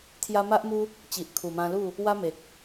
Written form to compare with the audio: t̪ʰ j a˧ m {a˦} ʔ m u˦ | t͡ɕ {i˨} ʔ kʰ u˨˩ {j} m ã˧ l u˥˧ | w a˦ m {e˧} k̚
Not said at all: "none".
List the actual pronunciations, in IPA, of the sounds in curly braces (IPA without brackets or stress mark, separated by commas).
a˦, i˨, none, e˨